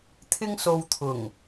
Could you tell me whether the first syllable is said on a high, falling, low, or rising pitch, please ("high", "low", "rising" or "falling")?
high